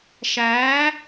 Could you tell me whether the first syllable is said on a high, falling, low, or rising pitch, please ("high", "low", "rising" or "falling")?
rising